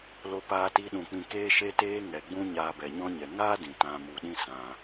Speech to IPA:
l o˧ p aː˧ t i˧ ɗ ũ˨ k͡p ĩ˧ k eː˦ ʃ e˦ t eː˦ ŋ ɛ˨ ɡ͡b ũ˦ ɲ aː˧ b ɛ˨ ɲ ɔ̃˦ ɲ ɛ˨ ŋ aː˦ d ĩ˨ t ã˧ m u˨ ɗ ĩ˦ s ã˧

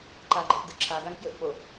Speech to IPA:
ǃ a ɡ͡ǃ ɯ ʔ d ɯ ǁʰ a ɡ a ŋ f j ɵ ʔ k͡p o

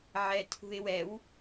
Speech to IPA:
ʕ ɛ tʰ ṳ ɪ̯ w ɛ w

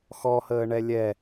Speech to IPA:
x ɔ h əː ɳ ɛ lʲ ɛ

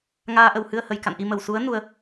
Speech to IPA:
ŋ aː˧ ʔ ə˨˩ w h ɨ˧ ə̯ h ə˨˩ j k a̰˧˨ n ʔ i˧ m ə˧˩ w s u˨˦ ə̯ n u˨˦ ə̯

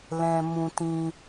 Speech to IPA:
l ɛ̃˧ m ũ˧ t ĩ˧

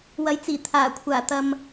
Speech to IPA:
w ɐ˨˧ j t͡s iː˨˩ t̪ʰ aː˨˩ kʷʰ aː˨˩ t̪ ɐ˨ m

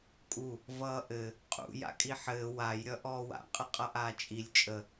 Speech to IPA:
kʼ u | v ʌː ʔ ɘ | qʼ ṵ j a̰ kʼ i ħ ɘː w a j ɾʲ ʌ ʔ ɔː w a̰ qʼ ə qʼ ʌ ʔ aː t͡ʃʼ i lʲ t͡ʃʼ ə

